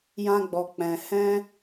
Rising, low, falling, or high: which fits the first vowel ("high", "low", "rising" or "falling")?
high